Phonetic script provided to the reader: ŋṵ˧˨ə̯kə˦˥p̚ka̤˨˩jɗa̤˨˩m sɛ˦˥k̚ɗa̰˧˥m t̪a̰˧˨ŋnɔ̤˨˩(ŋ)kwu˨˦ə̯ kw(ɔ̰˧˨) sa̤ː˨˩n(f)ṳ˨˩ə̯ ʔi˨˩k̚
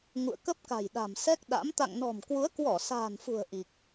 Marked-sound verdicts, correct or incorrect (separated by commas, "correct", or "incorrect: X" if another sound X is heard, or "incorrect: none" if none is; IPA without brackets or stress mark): incorrect: m, incorrect: ɔ˧˩, correct